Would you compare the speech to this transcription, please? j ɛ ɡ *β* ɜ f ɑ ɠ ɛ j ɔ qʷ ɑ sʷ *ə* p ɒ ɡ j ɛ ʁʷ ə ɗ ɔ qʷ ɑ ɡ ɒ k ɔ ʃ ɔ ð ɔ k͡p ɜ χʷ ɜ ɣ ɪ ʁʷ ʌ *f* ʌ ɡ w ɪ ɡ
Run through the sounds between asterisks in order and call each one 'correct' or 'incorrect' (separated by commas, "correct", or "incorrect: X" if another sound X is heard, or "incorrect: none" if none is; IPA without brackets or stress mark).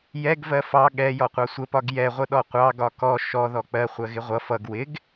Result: incorrect: v, correct, correct